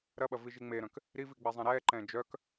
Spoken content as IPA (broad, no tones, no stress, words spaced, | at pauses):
ɾɐɓɐ viʒiŋ͡meɾœ̃k | ɾivi ɡ͡bɛzˤɛ̃ɾɛːǃɛ̃ː d͡ʒœk